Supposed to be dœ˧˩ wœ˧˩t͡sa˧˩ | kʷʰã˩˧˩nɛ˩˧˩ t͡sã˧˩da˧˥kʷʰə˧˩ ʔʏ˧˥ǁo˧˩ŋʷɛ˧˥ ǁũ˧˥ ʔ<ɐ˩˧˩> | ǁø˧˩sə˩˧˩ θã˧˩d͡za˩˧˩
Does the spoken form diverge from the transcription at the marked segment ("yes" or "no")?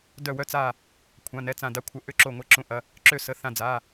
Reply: no